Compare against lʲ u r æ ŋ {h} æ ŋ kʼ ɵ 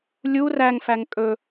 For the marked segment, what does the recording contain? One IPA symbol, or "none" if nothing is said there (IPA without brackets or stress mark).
f